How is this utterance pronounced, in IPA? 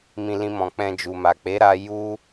mĩ˧lĩ˧mɔ̃˨ k͡pɛ̃˧d͡ʒu˨ma˨ k͡pe˨˦ɾa˧ ju˦

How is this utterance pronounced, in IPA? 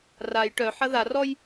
raj ʈœħɐ ðarɔj

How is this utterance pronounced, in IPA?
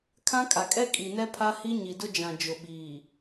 kʰã˦kʼa˨kʼɛ˦ kʼi˨nɛ˦ pʰa˦hi˦ ɲi˨dʊ˦d͡ʒã˨d͡ʒʊ˨ ɓiː˨

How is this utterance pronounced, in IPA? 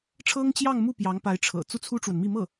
ʈ͡ʂʰɤ˥ŋt͡ɕjɑ˥˧ŋmu˥˩ pjɑ˧˥ŋpa˧˥ɪ̯ʈ͡ʂʰɤ̰˨˩ t͡su˥˩t͡sʰu˥ʈ͡ʂwə˨nmi˥˧ mɤ˥˩

